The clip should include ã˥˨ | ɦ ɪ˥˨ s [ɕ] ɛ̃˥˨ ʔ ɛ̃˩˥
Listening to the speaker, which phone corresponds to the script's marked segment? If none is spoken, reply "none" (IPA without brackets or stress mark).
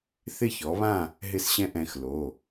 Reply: ɕ